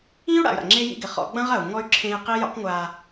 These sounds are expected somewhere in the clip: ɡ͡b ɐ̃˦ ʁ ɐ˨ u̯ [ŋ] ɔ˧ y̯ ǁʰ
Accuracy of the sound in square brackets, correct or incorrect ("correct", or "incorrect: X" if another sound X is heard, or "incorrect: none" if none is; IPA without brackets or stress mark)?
correct